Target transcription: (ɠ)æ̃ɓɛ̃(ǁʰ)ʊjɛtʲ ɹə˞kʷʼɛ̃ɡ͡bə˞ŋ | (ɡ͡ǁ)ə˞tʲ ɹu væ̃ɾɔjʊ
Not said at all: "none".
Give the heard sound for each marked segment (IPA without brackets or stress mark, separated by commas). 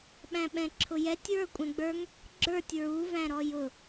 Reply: ɓ, ǁʰ, ɡ͡ǁ